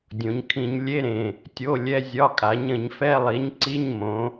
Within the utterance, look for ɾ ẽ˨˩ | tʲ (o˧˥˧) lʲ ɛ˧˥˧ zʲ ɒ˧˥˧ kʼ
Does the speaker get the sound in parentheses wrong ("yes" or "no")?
no